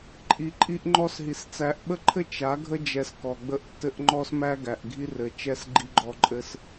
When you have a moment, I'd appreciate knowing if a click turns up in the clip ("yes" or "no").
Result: yes